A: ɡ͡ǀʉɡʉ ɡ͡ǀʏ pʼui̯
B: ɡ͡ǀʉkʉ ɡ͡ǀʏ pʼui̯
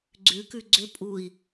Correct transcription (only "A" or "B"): B